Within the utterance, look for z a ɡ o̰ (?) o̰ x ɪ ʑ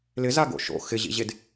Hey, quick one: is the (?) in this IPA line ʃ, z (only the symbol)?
ʃ